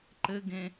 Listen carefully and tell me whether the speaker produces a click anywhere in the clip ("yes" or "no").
yes